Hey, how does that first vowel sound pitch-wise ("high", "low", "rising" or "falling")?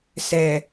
low